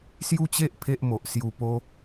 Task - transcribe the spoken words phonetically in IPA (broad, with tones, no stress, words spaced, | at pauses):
sju˦t͡ɕe˦ʔ pʰe˦ʔmo˨ʔ sju˨˩po˧